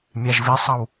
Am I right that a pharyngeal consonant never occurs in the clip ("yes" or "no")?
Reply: yes